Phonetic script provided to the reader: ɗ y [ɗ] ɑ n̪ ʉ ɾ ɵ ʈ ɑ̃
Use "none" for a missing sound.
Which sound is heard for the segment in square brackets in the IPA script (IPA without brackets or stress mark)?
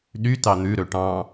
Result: t